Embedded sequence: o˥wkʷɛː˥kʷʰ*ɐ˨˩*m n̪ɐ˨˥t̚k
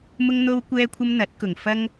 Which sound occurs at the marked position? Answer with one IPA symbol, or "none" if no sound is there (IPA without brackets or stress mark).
ɐ˥